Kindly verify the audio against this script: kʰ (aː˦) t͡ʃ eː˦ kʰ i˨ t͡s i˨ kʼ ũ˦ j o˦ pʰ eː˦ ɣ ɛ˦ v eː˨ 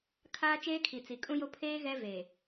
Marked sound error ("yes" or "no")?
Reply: no